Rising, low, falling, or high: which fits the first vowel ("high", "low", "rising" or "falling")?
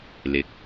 rising